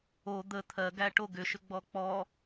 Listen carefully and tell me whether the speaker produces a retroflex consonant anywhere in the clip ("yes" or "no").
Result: yes